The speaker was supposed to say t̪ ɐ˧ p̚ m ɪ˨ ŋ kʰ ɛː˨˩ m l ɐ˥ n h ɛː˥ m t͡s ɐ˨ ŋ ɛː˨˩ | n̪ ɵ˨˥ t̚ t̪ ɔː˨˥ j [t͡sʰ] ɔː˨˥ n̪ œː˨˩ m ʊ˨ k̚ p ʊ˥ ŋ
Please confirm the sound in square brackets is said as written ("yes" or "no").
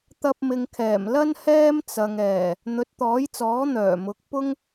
no